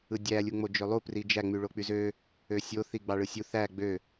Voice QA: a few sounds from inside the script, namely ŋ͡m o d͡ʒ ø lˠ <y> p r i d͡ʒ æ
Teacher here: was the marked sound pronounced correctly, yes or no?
no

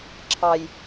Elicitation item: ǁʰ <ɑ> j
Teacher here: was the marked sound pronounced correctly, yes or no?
yes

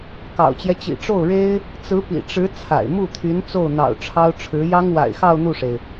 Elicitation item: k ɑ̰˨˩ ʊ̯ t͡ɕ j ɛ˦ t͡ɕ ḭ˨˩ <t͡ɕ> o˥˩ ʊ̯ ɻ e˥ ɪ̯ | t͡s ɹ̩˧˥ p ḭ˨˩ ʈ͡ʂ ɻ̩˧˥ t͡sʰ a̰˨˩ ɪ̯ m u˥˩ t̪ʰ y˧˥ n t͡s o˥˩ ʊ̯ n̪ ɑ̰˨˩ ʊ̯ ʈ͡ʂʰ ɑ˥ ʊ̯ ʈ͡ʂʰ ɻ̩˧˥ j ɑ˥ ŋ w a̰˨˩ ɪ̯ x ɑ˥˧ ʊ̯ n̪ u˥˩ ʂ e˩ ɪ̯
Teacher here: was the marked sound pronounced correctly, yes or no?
no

